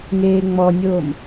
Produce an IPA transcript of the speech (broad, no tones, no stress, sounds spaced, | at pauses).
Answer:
ŋ eː ŋ͡m ɔ nʲ oː m